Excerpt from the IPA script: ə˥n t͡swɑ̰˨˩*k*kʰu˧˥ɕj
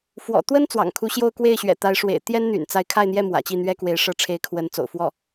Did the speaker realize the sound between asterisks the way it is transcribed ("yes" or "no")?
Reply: no